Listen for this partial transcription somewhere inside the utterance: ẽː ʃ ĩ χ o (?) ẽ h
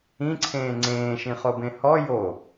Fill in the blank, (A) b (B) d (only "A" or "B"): A